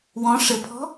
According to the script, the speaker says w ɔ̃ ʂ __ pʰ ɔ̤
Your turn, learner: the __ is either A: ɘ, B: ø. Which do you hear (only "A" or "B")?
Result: A